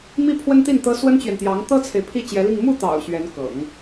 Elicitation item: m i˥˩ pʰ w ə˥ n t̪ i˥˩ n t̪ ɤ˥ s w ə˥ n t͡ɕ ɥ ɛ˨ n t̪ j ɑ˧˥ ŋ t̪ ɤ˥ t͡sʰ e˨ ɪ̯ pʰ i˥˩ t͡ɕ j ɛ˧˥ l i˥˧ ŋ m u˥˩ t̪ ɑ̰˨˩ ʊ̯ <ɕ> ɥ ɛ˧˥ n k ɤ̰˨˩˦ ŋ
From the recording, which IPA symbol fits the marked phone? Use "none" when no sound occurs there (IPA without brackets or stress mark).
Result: ɕ